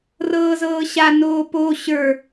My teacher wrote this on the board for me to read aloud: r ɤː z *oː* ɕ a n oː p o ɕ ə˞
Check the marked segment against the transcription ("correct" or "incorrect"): incorrect